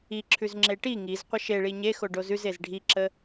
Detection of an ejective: absent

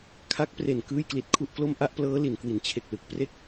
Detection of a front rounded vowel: absent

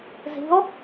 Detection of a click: absent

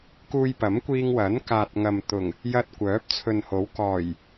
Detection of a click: absent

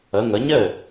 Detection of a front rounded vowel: absent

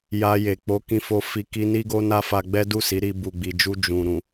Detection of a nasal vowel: present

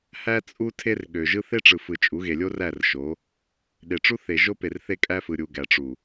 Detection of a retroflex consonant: present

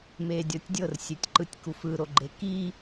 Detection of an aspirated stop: absent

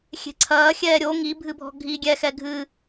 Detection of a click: present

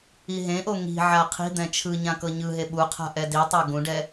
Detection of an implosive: present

